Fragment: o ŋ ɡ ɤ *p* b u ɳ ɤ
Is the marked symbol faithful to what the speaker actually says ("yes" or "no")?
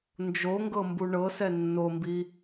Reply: no